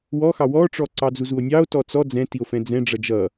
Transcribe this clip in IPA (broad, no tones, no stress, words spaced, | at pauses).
wɔxɑ wɔʈ͡ʂɔ ǀɑd͡zuzuo̯nʲɑo̯ tɔt͡sɔ d͡zɛ̃tio̯fɛ̃ d͡zɛ̃ɖ͡ʐʌ d͡ʒʌ